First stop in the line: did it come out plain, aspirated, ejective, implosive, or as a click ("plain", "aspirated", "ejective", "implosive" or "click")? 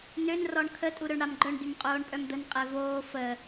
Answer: aspirated